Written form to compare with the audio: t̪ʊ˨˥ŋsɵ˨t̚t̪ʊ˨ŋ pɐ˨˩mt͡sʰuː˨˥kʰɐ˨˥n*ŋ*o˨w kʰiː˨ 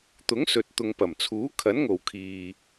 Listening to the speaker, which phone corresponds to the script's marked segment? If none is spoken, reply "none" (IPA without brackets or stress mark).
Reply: ŋ